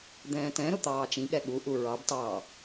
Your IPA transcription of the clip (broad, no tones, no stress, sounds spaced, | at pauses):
d̪ ɛ̃ː t ɛ̃ ɾ ʊ t̪ ɑː t͡ʃ ĩ ɠ ɛ ɠ u ʔ u ɹ ɑ b t ɑ